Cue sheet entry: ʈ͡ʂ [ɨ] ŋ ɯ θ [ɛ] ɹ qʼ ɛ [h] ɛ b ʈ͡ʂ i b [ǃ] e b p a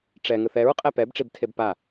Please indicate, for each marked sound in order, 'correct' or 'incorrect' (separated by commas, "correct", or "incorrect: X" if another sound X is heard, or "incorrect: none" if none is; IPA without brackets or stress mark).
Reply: incorrect: ɛ, correct, incorrect: p, incorrect: tʰ